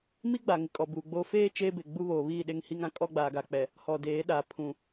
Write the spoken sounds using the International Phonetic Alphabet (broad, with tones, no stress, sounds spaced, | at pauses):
m i˦ ɡ͡b a˨ ŋ ɪ˨ kʼ ɔ˨ b uː˨ ɡ͡b oː˦ f eː˦ t͡ʃ eː˦ b e˨ ɡ͡b u˦ β oː˨ β iː˦˨ ɗ e˦˨ ŋ h i˦ ŋ ã˦ kʼ ɔ˦ ɡ͡b aː˨ ɡ a˨ k͡p ɛ˨ | h ɔ˨ d eː˨˦ ɗ a˨ pʰ ũ˨